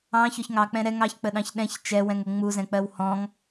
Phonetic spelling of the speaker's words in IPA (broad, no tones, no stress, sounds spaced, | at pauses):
ɑ̃ ç ɔ ç ŋ ɑ k͡p ɛ̃ ɾ ɛ ŋ ɑ ç k͡p ə ɗ ɑ̃ ç ɗ ɛ̃ ç t͡ʃ ɛ w ɛ̃ ŋ ʊ ŋ͡m u z ɛ̃ k͡p ɜ w h ɔ̃ ŋ